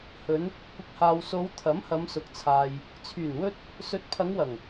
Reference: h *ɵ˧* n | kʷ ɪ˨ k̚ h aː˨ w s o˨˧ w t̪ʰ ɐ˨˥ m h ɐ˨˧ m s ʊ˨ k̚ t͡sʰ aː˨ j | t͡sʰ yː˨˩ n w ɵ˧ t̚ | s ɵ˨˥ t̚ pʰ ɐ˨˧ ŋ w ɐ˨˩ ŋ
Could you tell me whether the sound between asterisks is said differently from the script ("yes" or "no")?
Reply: yes